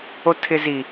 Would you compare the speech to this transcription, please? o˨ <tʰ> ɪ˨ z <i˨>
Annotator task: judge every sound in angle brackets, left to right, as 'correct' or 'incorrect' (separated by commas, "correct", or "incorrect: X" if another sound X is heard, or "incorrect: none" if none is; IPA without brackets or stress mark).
correct, correct